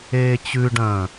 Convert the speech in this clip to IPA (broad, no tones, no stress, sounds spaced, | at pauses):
eː t͡ɕ ʉ ɖ ɐ̃ː